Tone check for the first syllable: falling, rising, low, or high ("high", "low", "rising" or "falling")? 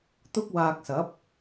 high